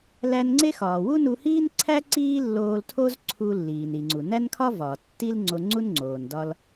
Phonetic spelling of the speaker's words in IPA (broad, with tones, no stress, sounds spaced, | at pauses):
l æ˧ n ŋ͡ǀ e˥ x ɒː˩ w u˥ n u˧ h iː˥ n ǀʰ æ˥ ǀ iː˥ lː oː˧ l tʰ o˥ z ǀʰ u˧ lː iː˩ n i˩ ŋ͡ǀ u˩ n æ˥ n kʰ ɒ˥ v ɒː˩ tː i˥ l ŋ͡ǀ o˧ ŋ͡ǀ u˥ n ŋ͡ǀ oː˩ n d ɒ˧ l